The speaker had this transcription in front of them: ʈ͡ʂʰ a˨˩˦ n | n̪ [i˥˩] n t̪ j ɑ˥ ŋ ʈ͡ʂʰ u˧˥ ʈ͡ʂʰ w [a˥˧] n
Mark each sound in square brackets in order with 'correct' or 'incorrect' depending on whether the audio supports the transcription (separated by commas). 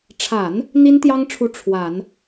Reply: incorrect, incorrect